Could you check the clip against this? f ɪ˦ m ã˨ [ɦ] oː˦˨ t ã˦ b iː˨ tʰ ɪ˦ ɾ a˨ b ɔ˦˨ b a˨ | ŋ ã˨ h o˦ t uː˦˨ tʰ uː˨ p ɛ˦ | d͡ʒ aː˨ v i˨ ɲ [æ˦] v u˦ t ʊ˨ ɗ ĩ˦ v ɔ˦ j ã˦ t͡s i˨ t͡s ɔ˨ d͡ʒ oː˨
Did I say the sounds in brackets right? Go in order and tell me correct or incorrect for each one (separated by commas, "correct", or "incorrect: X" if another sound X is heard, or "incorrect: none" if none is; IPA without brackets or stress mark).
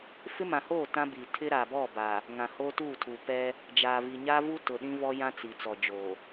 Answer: incorrect: h, incorrect: a˦